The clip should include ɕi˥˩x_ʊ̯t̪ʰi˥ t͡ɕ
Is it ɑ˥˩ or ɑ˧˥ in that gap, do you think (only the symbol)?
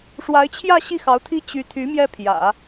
ɑ˧˥